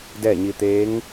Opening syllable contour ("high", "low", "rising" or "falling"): falling